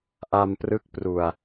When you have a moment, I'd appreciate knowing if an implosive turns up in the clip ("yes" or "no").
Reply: no